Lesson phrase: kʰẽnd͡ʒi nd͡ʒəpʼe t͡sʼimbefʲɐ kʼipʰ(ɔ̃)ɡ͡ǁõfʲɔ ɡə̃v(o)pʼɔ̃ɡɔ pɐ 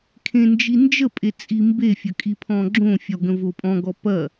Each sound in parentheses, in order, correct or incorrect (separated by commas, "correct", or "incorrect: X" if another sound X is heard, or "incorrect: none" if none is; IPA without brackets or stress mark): correct, correct